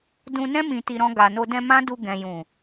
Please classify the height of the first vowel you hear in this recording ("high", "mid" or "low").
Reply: high